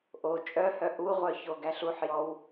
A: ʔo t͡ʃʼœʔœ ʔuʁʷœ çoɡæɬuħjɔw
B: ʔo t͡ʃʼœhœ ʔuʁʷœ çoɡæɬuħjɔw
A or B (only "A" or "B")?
B